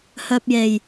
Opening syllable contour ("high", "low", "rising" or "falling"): high